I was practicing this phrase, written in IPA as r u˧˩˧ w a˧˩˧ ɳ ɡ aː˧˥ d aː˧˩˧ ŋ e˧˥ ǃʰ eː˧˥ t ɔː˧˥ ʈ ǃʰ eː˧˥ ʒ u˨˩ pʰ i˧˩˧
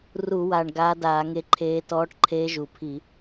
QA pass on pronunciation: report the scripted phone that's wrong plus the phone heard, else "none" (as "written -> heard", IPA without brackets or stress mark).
a˧˩˧ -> a˨˩